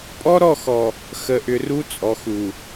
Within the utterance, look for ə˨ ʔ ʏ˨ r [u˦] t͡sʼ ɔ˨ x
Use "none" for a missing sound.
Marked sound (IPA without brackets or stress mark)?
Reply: u˦